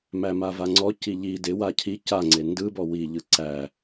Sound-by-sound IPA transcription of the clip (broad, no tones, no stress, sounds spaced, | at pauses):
m æ m a v a ŋ͡ǀ ɔ c i ʎ i d ɪ w a cʰ i c a ŋ͡ǀ e n d ɯ b ɔ w i ʎ ɯ ǀ æ